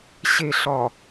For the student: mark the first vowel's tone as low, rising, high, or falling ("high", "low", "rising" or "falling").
low